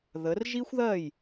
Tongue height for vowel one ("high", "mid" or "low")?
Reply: mid